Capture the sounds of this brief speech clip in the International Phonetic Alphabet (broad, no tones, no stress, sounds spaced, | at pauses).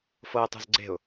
f ɤ ə̯ tˤ ṳ z ɡ͡ǀ e̤ ʊ̯